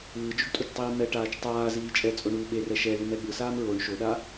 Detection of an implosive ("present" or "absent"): present